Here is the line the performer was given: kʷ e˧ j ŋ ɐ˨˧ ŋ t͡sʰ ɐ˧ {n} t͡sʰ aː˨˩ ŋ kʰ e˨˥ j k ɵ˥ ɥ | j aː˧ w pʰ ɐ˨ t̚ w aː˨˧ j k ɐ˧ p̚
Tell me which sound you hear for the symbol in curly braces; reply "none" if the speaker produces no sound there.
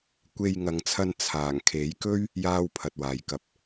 n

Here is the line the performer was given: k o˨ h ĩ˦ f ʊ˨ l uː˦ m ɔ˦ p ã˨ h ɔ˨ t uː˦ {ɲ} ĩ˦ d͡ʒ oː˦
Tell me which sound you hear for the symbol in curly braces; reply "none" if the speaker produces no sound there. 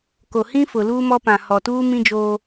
m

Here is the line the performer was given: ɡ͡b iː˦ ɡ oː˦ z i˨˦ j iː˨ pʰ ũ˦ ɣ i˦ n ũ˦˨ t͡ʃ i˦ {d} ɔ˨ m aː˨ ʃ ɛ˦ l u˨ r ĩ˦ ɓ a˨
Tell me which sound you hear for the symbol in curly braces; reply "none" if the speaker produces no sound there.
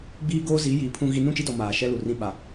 d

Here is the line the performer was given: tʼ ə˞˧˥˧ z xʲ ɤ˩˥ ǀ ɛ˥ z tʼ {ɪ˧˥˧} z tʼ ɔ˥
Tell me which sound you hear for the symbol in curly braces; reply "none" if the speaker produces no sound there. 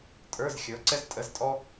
ə˧˥˧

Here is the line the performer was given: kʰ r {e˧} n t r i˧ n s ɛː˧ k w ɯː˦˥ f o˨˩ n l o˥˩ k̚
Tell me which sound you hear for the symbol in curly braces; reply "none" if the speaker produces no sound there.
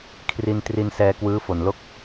i˧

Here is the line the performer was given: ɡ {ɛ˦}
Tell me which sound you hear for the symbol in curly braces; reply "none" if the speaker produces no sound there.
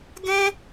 ɛ̃˦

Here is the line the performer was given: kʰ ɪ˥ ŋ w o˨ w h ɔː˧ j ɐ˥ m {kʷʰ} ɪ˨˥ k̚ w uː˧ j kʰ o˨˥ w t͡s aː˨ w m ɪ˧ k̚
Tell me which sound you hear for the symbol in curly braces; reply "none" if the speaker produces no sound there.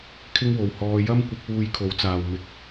kʷ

